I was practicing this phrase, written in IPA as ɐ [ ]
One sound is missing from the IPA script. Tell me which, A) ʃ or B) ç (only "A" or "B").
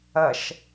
A